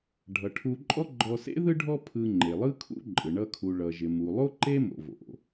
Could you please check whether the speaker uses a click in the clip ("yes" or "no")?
yes